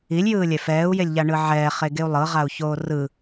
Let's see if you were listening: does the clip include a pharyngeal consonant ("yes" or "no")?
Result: yes